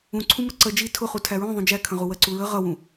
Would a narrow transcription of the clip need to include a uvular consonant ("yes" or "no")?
yes